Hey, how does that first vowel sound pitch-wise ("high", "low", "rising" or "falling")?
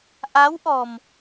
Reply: rising